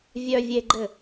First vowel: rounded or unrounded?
rounded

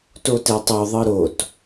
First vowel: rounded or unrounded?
rounded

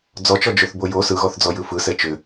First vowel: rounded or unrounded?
rounded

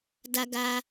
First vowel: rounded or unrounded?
unrounded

